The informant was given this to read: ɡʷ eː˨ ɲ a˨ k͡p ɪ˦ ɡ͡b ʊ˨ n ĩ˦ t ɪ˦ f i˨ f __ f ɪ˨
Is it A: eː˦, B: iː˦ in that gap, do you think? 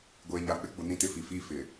B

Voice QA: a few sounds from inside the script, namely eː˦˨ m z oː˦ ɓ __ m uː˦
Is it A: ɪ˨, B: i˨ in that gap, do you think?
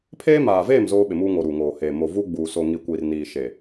A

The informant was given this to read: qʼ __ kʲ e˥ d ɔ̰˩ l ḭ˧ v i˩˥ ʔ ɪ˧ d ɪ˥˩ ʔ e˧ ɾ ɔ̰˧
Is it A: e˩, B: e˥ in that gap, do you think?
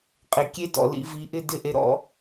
A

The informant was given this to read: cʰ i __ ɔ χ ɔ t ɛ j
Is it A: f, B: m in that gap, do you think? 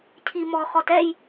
B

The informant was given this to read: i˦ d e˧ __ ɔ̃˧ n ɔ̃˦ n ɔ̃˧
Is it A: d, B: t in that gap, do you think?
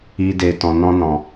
B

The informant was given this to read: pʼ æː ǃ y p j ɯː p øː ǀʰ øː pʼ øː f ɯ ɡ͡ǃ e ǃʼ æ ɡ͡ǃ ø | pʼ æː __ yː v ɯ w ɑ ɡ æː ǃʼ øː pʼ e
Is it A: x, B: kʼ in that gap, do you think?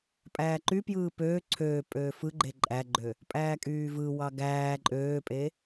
B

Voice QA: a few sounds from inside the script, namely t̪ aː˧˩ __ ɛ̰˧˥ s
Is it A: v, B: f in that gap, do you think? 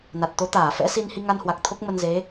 B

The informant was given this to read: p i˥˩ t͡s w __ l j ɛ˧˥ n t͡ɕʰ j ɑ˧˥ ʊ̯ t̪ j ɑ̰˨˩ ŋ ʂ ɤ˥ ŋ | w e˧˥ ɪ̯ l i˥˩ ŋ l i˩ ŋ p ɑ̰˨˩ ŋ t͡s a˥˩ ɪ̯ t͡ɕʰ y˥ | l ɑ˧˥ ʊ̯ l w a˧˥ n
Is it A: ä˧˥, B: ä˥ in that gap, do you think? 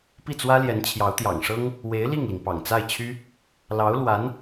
B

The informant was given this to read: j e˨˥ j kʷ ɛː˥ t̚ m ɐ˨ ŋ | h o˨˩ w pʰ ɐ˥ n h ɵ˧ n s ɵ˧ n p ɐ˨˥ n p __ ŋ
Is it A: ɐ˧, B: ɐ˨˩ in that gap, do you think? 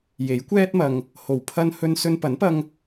A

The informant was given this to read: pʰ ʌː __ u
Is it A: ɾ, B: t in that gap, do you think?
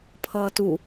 B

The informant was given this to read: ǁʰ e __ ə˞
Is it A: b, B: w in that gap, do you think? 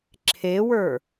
B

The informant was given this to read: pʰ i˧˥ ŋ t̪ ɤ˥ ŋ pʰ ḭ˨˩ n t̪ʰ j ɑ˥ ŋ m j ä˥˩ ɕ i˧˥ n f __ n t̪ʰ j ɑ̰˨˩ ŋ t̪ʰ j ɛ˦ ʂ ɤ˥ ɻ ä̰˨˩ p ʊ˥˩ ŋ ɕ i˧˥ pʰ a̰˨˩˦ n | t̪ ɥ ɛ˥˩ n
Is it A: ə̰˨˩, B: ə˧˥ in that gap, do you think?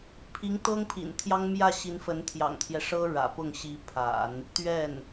B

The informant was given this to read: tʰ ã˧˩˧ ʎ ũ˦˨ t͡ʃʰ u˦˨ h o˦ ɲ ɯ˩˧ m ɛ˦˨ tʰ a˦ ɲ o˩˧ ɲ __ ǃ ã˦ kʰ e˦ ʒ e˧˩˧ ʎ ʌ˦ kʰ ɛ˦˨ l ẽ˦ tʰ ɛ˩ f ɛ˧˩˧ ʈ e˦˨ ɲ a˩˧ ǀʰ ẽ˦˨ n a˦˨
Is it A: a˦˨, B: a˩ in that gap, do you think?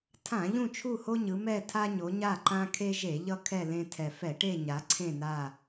A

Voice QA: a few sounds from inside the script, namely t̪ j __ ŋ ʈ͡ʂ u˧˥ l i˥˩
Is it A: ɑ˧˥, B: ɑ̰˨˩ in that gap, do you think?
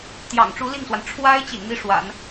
B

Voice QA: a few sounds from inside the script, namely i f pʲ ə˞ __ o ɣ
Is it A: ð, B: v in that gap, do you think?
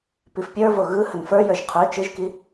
B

